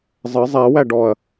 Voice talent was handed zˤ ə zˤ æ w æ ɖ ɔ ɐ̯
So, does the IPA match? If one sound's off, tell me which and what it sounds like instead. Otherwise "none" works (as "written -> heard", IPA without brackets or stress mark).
none